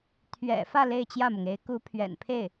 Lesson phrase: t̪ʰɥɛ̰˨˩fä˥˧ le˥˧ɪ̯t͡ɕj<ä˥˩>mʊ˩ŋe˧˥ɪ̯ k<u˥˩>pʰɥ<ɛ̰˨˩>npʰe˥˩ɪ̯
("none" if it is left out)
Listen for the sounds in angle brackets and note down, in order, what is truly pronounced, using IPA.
ä˥˩, u˧˥, ɛ̰˨˩

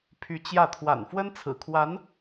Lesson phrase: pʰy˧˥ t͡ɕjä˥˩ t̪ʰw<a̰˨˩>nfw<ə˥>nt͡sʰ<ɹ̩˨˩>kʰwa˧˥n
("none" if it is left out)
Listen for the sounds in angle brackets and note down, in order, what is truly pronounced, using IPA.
a̰˨˩, ə˥, ɹ̩˨˩

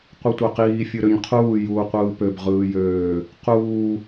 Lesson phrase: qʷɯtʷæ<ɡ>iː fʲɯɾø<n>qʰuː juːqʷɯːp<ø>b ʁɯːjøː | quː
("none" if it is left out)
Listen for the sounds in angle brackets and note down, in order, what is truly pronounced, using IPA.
q, ɲ, ø

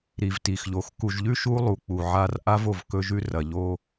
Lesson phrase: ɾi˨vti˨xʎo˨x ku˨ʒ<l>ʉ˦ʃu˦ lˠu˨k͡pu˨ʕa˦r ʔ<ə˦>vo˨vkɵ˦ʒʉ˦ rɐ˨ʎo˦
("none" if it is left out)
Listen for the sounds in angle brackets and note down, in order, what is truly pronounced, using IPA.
ʎ, a˦

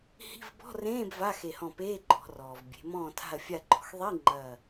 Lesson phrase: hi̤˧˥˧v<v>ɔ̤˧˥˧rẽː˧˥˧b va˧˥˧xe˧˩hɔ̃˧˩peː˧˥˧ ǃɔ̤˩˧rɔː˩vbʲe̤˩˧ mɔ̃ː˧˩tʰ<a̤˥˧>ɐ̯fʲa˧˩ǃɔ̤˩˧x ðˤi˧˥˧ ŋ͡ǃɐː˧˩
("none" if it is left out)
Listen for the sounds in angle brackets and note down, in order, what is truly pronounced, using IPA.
b, a̤˧˩

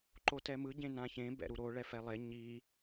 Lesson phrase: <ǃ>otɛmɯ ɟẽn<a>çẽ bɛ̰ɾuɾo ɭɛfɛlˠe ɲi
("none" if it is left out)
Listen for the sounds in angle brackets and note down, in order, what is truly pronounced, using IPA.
ǃ, ã

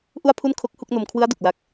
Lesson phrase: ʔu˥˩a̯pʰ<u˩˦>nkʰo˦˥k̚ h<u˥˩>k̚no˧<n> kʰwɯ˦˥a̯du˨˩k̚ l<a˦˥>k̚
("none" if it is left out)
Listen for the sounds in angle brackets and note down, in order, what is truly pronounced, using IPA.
u˥˩, u˥˩, m, a˦˥

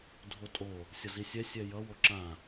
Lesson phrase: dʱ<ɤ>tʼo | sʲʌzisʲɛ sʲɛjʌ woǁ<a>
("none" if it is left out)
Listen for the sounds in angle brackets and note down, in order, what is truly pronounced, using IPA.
o, ã

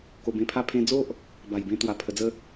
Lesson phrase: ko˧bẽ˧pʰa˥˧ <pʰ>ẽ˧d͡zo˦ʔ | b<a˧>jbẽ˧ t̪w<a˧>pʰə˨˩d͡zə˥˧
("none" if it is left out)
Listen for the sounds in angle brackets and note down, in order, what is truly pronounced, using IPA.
pʰ, a˨˩, a˨˩

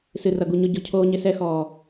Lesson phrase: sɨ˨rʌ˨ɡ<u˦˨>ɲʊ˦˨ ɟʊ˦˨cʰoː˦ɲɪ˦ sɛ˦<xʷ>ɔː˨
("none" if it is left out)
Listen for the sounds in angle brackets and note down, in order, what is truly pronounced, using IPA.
u˨, x

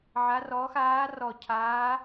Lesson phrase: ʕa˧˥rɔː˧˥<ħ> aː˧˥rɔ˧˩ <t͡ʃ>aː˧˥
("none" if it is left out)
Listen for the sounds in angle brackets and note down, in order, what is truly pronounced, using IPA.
x, cʰ

